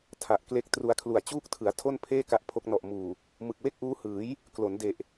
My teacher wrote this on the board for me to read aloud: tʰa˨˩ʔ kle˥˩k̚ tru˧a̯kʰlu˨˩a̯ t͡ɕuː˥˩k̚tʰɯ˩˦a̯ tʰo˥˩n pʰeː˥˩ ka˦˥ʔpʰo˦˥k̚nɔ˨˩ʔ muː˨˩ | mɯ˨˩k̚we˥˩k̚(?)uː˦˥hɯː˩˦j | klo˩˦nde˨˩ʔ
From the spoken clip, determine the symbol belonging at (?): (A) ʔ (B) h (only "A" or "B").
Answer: A